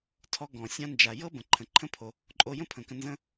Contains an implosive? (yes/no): no